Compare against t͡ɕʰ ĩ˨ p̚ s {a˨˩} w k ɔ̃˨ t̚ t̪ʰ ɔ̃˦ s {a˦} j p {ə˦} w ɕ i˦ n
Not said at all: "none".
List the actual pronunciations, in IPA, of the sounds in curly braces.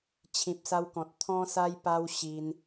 a˧, a˦, a˦

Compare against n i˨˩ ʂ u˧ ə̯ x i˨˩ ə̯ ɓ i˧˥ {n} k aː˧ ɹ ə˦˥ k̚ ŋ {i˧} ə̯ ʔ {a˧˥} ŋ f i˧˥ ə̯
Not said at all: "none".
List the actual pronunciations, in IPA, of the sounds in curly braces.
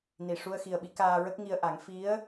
none, i˧, a˨˩˦

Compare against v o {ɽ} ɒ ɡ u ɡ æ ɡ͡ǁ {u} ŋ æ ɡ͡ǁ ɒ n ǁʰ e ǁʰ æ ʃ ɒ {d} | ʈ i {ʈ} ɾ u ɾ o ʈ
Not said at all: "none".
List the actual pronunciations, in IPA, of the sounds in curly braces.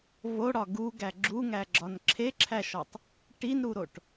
ɽ, u, tˤ, n

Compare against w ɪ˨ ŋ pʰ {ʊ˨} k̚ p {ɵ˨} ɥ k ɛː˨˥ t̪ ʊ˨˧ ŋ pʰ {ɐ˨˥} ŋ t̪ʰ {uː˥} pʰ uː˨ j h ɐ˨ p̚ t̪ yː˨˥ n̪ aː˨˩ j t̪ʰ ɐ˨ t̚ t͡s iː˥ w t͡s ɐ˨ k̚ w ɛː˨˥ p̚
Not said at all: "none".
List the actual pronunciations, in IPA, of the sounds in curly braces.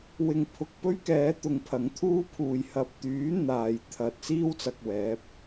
ʊ˨, ɵ˥, ɐ˨˥, uː˥

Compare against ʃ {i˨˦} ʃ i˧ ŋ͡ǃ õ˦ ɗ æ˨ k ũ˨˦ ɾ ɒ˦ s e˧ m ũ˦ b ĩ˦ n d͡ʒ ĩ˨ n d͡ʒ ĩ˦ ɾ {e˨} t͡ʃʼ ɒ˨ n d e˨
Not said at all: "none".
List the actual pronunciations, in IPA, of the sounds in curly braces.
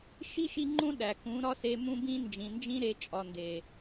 i˦, e˧

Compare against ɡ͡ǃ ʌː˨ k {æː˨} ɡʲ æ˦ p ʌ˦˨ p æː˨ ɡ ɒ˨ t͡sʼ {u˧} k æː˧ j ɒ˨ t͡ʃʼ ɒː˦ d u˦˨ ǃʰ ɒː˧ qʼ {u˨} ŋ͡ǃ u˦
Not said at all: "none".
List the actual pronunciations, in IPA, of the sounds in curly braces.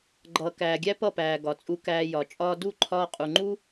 æː˨, u˧, u˨

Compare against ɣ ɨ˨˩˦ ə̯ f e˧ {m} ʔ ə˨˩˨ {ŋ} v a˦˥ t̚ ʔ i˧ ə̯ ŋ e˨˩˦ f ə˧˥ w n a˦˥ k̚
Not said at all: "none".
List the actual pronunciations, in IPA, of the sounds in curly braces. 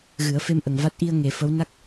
m, ŋ

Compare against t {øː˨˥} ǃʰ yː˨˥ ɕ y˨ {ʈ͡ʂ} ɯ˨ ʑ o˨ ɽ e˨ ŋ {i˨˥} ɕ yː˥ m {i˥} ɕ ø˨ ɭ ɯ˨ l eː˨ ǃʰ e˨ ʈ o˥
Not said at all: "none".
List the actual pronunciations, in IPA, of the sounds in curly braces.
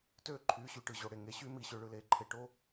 øː˥, ʈ, e˨˥, i˨˥

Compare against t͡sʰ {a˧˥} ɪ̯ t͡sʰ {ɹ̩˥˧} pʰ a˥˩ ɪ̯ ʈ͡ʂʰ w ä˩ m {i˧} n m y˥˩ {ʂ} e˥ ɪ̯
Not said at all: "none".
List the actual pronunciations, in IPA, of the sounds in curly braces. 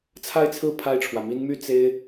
a˥˧, ɹ̩˥˧, i˥, t͡s

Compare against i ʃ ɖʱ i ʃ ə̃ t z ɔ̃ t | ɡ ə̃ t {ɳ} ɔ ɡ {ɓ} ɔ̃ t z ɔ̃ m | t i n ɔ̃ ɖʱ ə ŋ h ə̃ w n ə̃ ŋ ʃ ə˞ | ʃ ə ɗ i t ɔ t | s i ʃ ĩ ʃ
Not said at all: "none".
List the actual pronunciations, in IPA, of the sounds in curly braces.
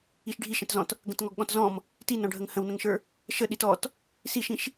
ŋ, ɠ

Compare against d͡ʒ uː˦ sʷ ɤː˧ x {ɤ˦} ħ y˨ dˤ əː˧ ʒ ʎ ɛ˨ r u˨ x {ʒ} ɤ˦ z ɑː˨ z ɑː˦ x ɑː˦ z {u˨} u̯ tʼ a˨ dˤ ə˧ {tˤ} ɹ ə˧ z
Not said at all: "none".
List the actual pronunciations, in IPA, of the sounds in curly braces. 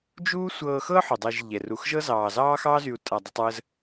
ɤ˦, ʒ, y˨, tˤ

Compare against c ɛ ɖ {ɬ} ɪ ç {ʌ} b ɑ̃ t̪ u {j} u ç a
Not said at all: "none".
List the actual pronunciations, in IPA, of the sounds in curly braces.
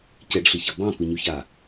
ɬ, ʌ, ɲ

